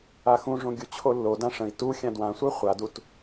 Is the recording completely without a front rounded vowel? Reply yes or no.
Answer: yes